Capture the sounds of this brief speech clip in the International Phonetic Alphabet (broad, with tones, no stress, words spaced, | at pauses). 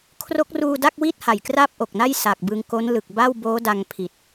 kʰro˦˥k̚ruː˧da˥˩k̚ wi˥˩t̚ ha˨˩jkraː˥˩p̚ʔo˨˩k̚na˥˩j sa˨˩k̚ bɯ˧ŋko˦˥nlɯ˨˩k̚ ba˥˩wboː˦˥da˧ŋpʰi˨˩t̚